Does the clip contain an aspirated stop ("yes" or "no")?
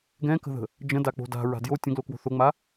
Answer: no